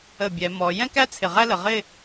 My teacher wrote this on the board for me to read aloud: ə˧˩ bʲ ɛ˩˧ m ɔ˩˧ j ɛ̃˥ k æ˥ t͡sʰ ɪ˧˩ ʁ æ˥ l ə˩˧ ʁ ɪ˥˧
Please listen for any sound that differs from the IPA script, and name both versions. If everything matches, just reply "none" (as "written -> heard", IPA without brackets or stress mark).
none